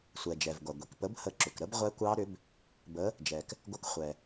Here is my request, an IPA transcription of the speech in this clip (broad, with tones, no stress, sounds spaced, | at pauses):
sʷ ɛ˩ d͡ʒ ɛ˩ v ɡʷ a˩ ɡʷ i˩ k p ə˨˥ b h ə˨˥ ǁ ʏ˩ k ɾ ə˦˥ b ʁʷ ɛ˦˥ kʷ ɑ˦˥ ɾ ʏ˨˥ b | b ə˨˥ | d͡ʒ ɛ˩ k | ɡʷ ə˨˥ k χʷ ɛ˩